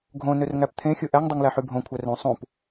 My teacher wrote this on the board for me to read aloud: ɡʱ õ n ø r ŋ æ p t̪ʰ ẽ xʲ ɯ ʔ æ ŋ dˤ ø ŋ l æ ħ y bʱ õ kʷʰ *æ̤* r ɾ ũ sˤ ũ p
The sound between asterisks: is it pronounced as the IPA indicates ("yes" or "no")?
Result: no